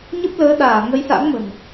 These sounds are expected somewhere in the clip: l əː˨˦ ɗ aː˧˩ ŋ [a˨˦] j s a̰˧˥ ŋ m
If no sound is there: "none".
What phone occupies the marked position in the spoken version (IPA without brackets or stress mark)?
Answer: ə˨˦